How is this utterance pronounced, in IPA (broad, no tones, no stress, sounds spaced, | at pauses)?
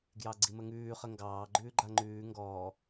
ɡ j ɑ ɡ͡ǀ i m ə ŋ ʉː χ ə ŋ ɡ ɑː ɡ͡ǃ ʉː ɡ͡ǃ a ŋ͡ǃ ʉː ŋ ɡ ɔː